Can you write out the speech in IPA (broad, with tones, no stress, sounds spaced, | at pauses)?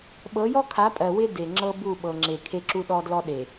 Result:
ɓ ɤ˨˦ j ɔ˦ kʰ a˨˦ pʼ ɜ˨ w ɪ˦ d e˨ ŋ͡ǁ ɤ˦ b u˦˨ ɓ ɤ˨ ŋ͡ǁ e˨ kʰ e˦ ǁ u˦ ɗ ɔ˦ d l ɔ˦ ɗ e˨